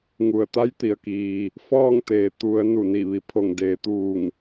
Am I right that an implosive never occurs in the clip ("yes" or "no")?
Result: yes